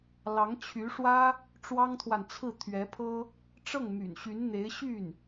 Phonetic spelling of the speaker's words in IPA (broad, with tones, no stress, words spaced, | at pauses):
lɑ˧˥ŋt͡ɕʰy˧˥ʂwä˥ | ʈ͡ʂwɑ˥ŋt̪ʰwa˨n t͡sʰɹ̩˥˩t̪ʰɥɛ˧˥pʰɤ˥ | ʈ͡ʂɤ˥˩ŋmy̰˨˩nɕy˧˥nn̪e˧˥ɪ̯ ɕy˥˩n